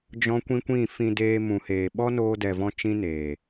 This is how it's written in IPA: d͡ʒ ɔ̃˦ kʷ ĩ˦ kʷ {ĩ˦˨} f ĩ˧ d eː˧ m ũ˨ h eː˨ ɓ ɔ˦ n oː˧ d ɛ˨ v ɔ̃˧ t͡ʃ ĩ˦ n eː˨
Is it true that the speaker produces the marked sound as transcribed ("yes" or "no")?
yes